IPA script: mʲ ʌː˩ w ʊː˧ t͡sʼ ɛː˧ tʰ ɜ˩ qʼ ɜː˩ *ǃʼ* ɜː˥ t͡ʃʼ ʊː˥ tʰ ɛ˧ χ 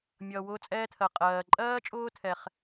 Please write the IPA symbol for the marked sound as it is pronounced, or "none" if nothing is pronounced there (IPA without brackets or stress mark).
ǃʼ